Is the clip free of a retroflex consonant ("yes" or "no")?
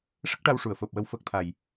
no